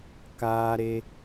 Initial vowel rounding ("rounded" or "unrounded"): unrounded